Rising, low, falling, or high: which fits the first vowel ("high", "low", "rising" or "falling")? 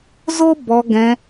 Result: high